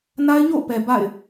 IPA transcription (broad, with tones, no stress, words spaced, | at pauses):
na˦ɪ̯ɲo̰˦˨ʊ̯pɛ˨ ba̰˦˨ɪ̯